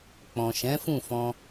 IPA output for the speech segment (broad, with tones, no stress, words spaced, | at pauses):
k͡pɔ̃˨ ʃɛ̃˨˦fũ˦˨fɔ̃˧